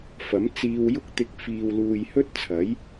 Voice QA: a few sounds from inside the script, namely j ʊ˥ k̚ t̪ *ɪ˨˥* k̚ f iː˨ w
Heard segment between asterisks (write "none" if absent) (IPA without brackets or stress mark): ɪ˧